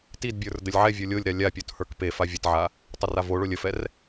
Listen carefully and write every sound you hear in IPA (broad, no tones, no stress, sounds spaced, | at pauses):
t i d bʲ ə˞ r d ə lʲ ʕ ɛ vʲ o lʲ o lʲ ɾ a lʲ a pʲ o t h ə˞ k p e f a vʲ ə t ʕ a | tˤ ə r a v o ɭ o lʲ ə f ɛ r